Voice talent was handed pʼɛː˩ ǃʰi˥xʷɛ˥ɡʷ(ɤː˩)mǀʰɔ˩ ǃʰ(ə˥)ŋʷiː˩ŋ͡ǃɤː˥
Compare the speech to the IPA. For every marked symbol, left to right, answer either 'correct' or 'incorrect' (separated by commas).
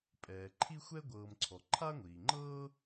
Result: incorrect, incorrect